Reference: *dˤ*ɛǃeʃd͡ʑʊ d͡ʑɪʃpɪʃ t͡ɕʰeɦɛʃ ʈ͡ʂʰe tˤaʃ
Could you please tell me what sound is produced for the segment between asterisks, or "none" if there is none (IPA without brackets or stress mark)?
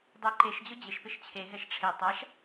dˤ